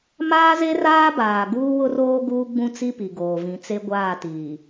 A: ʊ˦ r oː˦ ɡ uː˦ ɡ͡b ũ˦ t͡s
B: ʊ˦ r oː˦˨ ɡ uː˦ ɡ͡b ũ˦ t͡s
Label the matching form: A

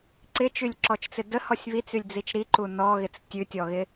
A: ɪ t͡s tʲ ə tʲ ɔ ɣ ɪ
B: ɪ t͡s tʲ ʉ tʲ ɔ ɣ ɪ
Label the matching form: B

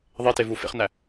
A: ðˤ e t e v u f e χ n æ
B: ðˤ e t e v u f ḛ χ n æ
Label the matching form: B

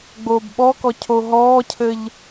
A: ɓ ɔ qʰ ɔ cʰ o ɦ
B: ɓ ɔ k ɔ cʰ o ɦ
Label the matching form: B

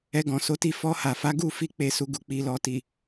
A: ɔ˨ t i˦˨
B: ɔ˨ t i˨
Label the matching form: B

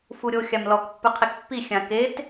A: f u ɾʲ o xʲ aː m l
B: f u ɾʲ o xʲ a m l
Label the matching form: B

